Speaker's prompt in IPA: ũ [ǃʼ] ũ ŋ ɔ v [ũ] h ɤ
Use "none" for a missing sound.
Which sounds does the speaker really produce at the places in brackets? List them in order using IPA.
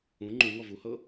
ŋ͡ǃ, u

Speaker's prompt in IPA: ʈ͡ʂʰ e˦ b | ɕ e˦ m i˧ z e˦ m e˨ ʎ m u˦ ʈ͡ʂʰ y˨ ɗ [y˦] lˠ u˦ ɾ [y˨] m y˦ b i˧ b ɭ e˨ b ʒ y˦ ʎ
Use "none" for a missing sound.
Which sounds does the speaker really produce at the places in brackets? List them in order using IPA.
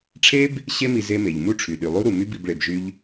y˨, u˨

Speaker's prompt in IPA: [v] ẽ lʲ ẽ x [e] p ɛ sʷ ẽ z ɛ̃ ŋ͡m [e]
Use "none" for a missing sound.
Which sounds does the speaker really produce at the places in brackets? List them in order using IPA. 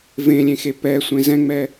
v, e, ɛ

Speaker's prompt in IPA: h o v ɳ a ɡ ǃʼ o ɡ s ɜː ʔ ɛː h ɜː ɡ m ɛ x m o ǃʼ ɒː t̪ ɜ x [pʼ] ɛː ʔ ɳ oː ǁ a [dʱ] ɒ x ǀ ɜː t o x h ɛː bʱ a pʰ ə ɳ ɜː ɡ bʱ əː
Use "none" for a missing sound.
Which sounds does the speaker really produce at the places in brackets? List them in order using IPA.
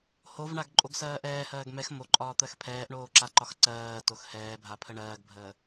pʰ, ǃ

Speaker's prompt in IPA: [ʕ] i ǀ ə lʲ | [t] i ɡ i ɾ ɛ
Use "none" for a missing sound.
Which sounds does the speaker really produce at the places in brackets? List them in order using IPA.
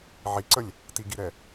ʕ, t

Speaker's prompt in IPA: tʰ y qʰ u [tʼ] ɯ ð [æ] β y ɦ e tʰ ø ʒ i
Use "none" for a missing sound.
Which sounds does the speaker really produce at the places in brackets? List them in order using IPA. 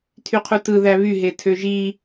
t, æ

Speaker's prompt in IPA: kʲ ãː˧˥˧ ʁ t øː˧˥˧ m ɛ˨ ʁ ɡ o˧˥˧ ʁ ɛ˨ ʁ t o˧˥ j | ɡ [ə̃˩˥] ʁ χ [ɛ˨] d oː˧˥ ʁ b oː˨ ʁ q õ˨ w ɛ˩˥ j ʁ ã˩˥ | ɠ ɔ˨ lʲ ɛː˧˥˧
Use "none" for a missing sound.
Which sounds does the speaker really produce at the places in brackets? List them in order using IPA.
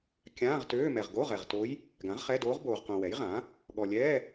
ã˩˥, ɛ˧˥˧

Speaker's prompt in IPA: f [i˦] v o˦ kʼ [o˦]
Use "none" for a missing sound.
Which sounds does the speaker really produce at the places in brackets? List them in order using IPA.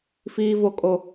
iː˦, o˦

